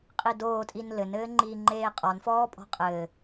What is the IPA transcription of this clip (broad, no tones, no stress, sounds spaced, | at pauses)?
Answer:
qʼ i d oː tʼ i n l ɘ n ɘː ŋ͡ǃ iː ŋ͡ǃ eː qʼ ɔ n f ɔː pʼ ɔ̤ qʼ ɘː